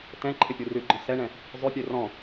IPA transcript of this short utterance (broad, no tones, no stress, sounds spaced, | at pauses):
t ɛ̃ ǃʰ ɪ pʲ u r ʉ ɡ͡ǃ ɔ̃ s ɛ ɳ ɛ̃ | zˤ ʉ pʲ ø r ɔ̃